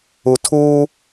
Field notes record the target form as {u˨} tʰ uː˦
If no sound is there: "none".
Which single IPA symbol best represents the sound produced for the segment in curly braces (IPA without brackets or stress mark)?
u˨